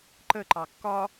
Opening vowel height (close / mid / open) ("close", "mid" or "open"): mid